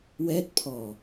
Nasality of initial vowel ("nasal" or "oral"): oral